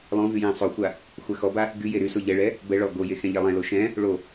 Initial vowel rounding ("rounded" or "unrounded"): rounded